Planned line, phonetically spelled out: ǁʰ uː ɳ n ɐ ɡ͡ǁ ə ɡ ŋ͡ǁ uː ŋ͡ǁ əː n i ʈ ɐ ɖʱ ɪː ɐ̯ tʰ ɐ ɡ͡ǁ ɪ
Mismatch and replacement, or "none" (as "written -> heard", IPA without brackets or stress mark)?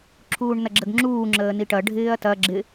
tʰ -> t